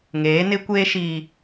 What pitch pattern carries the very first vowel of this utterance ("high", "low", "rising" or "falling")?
rising